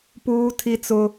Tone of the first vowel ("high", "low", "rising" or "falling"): high